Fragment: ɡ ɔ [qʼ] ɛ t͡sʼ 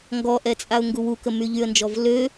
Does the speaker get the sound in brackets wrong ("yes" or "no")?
yes